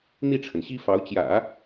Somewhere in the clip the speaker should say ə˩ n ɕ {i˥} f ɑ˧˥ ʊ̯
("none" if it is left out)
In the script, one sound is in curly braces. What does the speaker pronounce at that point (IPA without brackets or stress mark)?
i˥